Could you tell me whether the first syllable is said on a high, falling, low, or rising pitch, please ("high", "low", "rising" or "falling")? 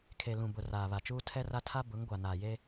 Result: low